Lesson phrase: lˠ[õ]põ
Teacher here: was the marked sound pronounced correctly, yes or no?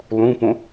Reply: no